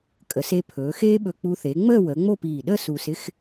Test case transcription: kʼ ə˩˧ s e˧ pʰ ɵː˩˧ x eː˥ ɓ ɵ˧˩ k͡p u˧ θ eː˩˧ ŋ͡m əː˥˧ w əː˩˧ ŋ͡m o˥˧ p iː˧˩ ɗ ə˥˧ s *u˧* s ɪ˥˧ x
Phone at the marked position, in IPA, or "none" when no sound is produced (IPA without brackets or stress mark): uː˧